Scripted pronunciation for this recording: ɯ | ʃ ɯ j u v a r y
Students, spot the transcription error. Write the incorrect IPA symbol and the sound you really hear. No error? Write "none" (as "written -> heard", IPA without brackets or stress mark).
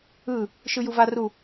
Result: y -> u